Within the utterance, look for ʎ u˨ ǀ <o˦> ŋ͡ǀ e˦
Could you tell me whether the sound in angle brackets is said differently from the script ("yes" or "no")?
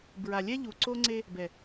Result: no